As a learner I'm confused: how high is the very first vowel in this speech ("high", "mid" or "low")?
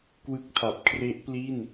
high